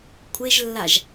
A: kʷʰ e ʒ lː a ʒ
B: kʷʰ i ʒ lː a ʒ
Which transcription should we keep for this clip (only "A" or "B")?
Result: A